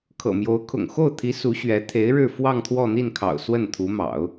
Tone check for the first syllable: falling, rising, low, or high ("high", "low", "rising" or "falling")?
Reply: low